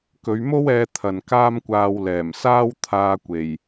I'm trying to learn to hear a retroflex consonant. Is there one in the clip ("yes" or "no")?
no